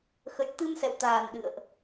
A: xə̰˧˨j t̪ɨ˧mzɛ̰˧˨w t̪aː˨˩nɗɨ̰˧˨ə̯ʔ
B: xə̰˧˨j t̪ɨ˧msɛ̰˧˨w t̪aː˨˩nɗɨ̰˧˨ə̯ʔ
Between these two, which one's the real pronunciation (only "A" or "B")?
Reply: B